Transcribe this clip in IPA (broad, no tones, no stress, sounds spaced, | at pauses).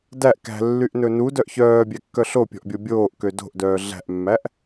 d æ ʔ k æ̤ lː y ʔ n ɵ n u d œ ʔ ç œː bʲ æ kː œ ɬ o pʲ ɔ̤ ʔ bʲ o bʲ oː ʔ k ø d o̤ ʔ d œː ɮ æ̤ ʔ mː æ ʔ